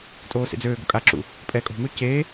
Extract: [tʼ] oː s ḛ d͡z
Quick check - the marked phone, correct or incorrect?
correct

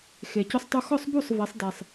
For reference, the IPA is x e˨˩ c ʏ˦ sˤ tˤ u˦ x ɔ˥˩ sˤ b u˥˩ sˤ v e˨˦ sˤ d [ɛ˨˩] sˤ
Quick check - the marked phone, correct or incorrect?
correct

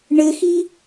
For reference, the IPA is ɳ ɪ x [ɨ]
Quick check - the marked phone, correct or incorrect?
incorrect: i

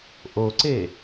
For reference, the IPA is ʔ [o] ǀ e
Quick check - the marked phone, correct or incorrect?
correct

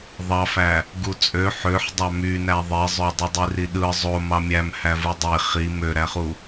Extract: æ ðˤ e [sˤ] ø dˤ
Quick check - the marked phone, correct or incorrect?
incorrect: zˤ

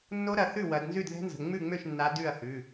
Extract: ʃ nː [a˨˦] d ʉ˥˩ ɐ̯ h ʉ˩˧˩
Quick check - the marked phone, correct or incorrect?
correct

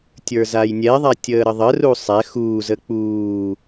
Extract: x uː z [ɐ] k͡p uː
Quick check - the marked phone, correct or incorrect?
incorrect: ə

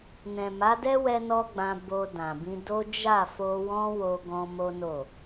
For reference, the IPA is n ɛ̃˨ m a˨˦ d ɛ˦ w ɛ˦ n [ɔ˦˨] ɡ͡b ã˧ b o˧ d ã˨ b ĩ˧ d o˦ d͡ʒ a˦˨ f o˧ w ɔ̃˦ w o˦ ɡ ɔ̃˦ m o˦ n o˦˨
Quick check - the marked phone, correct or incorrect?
incorrect: ɔ˦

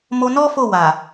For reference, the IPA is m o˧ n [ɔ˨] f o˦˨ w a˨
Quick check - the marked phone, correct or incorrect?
incorrect: ɔ˦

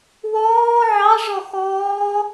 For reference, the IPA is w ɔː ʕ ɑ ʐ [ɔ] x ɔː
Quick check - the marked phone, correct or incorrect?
correct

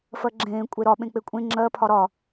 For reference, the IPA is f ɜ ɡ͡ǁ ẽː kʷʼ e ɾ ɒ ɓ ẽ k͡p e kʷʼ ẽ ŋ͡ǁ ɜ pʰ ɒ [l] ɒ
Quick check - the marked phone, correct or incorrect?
incorrect: ɾ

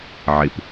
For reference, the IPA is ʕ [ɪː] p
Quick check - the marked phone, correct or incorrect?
incorrect: ɪ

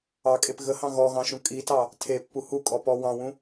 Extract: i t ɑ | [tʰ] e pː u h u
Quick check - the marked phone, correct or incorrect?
correct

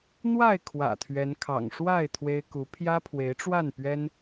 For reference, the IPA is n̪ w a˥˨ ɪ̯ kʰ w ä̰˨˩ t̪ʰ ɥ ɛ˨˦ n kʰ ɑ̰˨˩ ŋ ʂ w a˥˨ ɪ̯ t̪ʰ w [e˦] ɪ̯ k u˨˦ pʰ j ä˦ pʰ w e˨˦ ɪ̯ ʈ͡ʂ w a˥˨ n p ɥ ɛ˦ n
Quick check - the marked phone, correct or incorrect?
correct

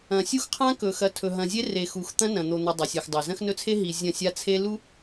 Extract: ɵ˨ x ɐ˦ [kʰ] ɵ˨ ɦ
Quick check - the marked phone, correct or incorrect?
incorrect: tʰ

